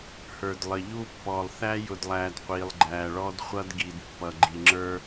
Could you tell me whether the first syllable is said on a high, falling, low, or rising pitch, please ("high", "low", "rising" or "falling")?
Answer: low